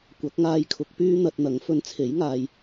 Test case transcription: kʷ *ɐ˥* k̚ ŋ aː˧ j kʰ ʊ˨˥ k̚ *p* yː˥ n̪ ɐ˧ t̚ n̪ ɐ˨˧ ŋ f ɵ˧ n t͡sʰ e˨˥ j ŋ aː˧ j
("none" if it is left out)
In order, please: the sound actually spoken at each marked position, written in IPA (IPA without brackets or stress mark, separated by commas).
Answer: ɐ˨˥, p